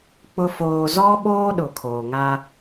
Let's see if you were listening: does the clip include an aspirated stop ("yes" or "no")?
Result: yes